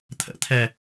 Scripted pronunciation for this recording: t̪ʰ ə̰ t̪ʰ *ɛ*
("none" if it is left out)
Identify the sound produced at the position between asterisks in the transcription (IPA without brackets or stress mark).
ɛ